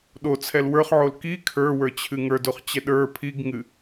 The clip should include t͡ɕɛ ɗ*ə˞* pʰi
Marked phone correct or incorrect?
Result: correct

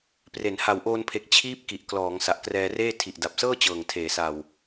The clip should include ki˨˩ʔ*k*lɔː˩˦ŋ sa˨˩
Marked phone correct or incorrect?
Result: correct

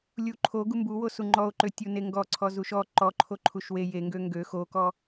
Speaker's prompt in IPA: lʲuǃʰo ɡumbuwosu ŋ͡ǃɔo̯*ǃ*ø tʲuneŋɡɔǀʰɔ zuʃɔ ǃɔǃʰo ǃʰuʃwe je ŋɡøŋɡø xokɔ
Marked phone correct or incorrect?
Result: correct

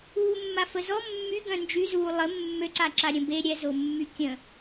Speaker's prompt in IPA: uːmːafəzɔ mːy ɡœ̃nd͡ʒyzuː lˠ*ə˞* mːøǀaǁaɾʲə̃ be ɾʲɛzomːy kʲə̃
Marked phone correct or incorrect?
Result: incorrect: ə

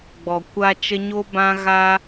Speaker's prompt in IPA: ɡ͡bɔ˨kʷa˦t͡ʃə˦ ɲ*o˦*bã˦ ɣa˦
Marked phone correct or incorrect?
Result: correct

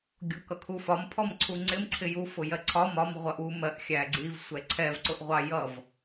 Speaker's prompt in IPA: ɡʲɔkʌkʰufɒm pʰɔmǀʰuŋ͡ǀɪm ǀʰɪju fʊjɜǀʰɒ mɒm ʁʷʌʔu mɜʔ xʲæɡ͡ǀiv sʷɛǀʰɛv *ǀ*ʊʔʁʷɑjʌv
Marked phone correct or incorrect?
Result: correct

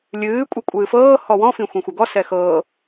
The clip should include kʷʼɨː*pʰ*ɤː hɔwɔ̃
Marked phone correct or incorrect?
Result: incorrect: f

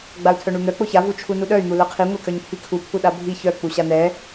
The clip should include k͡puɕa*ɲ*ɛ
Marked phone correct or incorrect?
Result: incorrect: n̪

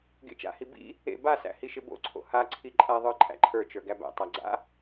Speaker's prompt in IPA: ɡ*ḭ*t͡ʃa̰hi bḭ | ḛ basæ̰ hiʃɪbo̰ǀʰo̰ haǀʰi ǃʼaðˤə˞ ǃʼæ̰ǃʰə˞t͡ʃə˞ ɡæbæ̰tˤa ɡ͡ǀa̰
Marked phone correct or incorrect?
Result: incorrect: ḛ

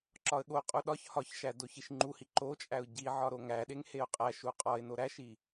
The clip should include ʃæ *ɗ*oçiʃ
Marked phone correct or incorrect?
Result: incorrect: d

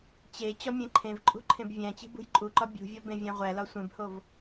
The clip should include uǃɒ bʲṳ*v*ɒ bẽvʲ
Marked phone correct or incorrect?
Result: incorrect: vʲ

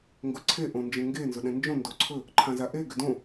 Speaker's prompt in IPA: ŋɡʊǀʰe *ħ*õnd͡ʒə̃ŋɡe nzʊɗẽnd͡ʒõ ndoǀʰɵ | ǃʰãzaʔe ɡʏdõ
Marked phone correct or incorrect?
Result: incorrect: ʔ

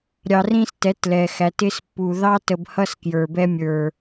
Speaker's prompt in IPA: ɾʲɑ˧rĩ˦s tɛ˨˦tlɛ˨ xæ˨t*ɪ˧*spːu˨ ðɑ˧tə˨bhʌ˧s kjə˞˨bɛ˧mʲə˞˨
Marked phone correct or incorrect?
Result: correct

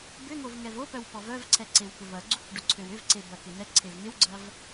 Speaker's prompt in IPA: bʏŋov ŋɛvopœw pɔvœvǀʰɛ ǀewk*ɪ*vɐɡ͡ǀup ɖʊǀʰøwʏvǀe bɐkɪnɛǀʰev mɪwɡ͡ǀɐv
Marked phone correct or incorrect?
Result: incorrect: ʏ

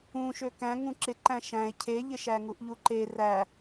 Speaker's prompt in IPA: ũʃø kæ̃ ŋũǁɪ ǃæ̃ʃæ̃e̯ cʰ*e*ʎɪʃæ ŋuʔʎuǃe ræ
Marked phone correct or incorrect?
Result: correct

